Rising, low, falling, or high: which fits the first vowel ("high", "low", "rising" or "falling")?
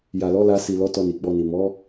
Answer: low